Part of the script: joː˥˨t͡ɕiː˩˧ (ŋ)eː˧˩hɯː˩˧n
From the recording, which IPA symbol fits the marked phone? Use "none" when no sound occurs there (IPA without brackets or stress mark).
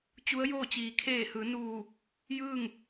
kʰ